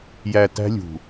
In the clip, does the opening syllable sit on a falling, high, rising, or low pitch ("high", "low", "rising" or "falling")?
low